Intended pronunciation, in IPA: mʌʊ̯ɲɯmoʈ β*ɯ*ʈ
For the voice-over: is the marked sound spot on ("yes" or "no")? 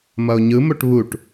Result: no